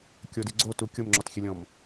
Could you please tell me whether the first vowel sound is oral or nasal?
oral